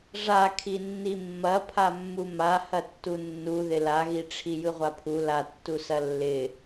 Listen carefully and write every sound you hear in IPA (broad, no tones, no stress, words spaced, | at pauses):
ʐakʰinːi mːɐpʰamːu mahɐtːu nːuðɪ laɣiʈ͡ʂʰi jɯʁʷapʰu latːusɐ lːɪ